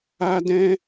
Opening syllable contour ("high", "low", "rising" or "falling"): high